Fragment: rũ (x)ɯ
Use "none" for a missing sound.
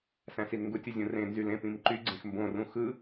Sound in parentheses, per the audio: x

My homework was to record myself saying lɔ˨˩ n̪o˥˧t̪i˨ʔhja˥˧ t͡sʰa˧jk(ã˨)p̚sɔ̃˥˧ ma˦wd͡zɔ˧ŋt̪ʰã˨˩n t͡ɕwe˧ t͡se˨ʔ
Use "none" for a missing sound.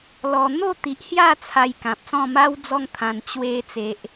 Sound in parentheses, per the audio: ã˨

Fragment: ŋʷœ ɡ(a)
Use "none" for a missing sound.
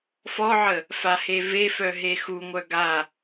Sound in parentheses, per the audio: a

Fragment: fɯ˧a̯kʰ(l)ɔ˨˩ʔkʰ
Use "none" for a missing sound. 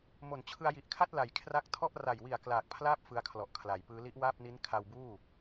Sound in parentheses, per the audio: l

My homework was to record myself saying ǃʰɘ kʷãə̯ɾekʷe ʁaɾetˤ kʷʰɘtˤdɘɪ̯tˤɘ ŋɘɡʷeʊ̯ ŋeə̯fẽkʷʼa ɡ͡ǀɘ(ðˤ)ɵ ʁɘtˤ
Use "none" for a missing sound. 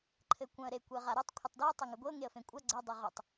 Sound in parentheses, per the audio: dˤ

